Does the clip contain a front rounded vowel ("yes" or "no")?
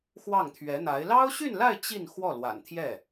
yes